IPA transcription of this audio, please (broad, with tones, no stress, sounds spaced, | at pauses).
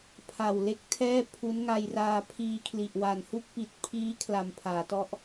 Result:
pʰ a˨˩ w l e˦˥ k̚ tʰ ɛː˥˩ pʰ u˦˥ n ŋ a˧ j r aː˧ pʰ iː˧ kʰ l i˨˩ ʔ w a˨˩ n h u˥˩ k̚ p i˨˩ t̚ pʰ iː˦˥ kʰ l a˨˩ m pʰ aː˩˦ t ɔ˦˥ ʔ